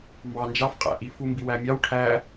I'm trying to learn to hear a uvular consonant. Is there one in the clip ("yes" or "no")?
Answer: yes